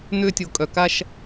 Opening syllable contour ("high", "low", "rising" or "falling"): high